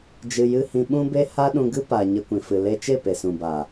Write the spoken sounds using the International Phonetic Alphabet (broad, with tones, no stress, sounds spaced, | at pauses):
d͡ʒ ɨ˧ j ɨ˦ h ĩ˧ ɓ ũ˦ b e˦ h a˦ ɗ ũ˧ ɡ ɨ˦ p a˨ ɲ ə˧ kʷ ĩ˨ f ɨ˨ l e˧ t͡ʃ e˦˨ p e˨ s ũ˨ b a˨